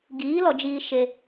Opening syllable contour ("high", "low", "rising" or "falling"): rising